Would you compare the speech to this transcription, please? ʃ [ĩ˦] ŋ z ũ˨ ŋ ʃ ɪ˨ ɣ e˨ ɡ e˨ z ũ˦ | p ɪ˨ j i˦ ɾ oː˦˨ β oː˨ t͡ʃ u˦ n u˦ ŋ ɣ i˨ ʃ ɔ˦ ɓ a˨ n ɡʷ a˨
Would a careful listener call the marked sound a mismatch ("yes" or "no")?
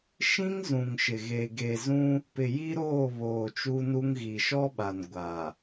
no